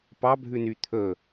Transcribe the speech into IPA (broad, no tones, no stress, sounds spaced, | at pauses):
p ɑ bʱ ʉ n y t̪ʰ ɵ